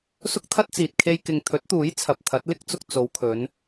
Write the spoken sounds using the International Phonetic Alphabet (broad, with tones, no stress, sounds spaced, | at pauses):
s ʊ˥ k̚ t̪ʰ ɐ˥ t̚ t͡s iː˨ t̚ kʰ e˧ j k ɪ˨ ŋ t̪ʰ ɵ˨˥ t̚ t̪ uː˨˥ j t͡sʰ ɐ˨ p̚ t̪ʰ ɐ˨˥ t̚ l ɪ˥ k̚ t͡s ʊ˧ k̚ t͡s o˨˧ w kʰ ɵ˨˧ n